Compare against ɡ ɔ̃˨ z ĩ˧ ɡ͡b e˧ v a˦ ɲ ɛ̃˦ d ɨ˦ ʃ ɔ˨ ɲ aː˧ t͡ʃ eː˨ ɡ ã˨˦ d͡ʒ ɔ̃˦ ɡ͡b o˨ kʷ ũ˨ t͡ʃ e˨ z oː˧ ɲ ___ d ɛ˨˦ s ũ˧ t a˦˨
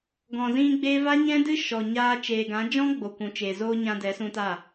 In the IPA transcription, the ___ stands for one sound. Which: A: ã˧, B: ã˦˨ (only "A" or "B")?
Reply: A